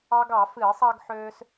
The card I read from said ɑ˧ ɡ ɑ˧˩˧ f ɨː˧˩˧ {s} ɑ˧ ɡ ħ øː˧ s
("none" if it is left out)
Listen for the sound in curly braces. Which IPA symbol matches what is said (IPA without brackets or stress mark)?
sˤ